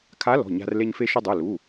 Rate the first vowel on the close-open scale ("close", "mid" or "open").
open